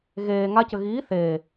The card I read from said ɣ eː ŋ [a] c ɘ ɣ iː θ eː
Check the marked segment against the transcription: correct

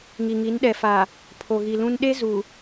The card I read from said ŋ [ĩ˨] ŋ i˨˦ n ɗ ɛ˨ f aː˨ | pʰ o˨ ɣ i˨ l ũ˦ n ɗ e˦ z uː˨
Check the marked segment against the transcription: incorrect: i˨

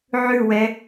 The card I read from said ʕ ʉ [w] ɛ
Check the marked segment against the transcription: correct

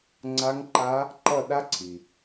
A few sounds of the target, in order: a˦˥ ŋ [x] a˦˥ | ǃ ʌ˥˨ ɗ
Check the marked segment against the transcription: incorrect: ǃ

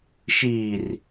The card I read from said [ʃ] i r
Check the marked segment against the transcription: correct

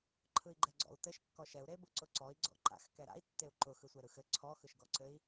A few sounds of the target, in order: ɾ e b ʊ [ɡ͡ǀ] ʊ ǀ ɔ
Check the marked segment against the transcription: incorrect: ǀ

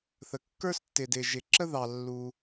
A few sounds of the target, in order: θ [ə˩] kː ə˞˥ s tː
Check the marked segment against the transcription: correct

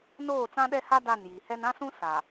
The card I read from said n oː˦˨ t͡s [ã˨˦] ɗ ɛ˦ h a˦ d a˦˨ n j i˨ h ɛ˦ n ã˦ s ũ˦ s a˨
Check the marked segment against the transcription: incorrect: ã˦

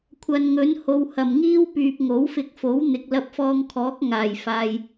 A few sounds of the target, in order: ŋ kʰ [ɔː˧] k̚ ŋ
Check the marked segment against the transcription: incorrect: ɔː˨˥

